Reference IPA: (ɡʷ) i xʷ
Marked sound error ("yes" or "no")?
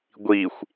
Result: no